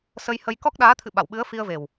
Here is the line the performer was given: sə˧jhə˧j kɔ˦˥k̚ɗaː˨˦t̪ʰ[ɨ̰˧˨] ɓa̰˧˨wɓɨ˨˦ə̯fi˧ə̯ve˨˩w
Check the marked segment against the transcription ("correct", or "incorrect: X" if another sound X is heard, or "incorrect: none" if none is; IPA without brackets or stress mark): correct